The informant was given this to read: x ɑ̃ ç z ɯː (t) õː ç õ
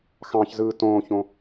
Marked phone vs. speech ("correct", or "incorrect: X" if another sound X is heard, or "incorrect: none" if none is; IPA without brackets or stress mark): correct